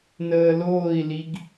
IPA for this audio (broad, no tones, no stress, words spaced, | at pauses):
nəːloːi̯liɡ